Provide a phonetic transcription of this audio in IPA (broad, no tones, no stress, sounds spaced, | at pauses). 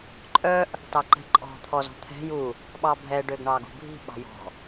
ǃʼ œ ʔ | t ɑ ǃ ɛ̤ ǃʼ ɔ̤ t̪ʰ ɔ z ɔ̤ t̪ʰ ɛ̤ j u | ɓ ɑ bʱ ɛ ɖ ø ɡ ɳ ɑ ɡ ṳ bʱ i̤ ɓ ɑ̤ j ɔ̤